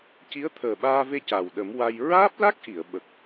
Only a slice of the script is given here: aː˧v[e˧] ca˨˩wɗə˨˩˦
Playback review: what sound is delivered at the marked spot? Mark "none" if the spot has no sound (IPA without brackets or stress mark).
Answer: e˧